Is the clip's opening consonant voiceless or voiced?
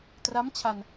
voiceless